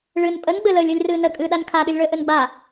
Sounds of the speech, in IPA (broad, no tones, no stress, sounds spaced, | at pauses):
ɭ ɨ n pʼ ə n ɡ͡b ɘ l əː lʲ əː lʲ r ɨː n ə kʼ ɨː ɗ a n kʰ a ɗ ɨ lʲ ɭ əː ʔ ɘ n ɡ͡b a